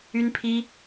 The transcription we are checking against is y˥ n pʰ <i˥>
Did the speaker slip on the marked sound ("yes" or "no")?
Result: no